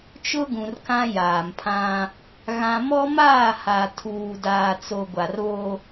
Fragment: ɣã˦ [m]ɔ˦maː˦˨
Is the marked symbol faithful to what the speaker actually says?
yes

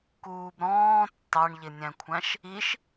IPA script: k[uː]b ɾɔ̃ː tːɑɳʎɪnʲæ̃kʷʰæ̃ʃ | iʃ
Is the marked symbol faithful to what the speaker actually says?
yes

